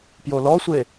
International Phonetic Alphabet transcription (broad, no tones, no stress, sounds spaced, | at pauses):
p j o l ɔ sʷ e